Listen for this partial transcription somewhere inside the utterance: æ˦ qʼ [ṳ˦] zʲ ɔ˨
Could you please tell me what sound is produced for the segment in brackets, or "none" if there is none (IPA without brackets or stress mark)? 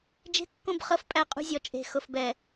ṳ˦